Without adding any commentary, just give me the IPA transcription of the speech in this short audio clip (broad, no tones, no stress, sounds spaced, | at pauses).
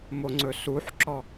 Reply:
m o ŋ͡ǀ ɵ s u ħ ǁ ɔ